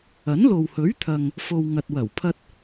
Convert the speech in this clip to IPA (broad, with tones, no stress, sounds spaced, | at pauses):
ɐ˨˥ n l o˨ w h ɵ˨˥ ɥ t̪ʰ ɐ˨ ŋ | f o˧ w ŋ ɐ˨ t̚ w ɐ˨˩ w pʰ ɐ˧ t̚